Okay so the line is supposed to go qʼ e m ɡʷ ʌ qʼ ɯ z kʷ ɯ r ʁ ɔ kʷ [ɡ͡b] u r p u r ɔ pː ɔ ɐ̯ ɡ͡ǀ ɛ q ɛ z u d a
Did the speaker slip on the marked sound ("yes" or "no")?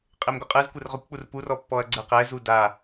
yes